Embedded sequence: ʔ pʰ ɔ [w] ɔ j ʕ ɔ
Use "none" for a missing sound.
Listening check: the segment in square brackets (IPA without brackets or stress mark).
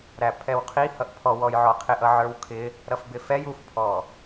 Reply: w